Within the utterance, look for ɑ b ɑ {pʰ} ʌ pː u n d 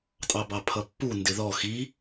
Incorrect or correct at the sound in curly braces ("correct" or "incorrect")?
correct